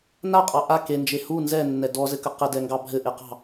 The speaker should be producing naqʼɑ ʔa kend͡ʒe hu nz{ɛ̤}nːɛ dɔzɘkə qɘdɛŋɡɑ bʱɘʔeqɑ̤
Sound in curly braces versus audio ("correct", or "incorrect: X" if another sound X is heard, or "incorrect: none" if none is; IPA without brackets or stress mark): incorrect: ɛ